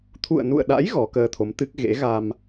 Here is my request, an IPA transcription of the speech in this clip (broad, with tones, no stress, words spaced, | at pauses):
t̪ʰṵ˧˨ə̯nṵ˧˨ə̯ɗa̰˧˥j ɣɔ˨˦kəː˧t̪ʰo˨˦mt̪ɨ˦˥k̚ ɣḛ˧˥ɣa˧m